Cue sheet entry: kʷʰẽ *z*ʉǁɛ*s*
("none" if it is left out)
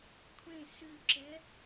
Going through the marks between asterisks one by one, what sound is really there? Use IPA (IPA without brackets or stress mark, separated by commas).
s, none